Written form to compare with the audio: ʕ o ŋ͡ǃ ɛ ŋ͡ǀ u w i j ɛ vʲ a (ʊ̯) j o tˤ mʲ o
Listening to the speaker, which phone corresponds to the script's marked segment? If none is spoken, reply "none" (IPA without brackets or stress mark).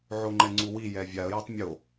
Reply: ə̯